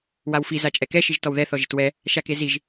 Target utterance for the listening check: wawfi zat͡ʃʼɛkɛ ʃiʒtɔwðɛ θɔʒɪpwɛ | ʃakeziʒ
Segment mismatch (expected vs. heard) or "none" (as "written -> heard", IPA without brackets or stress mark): p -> t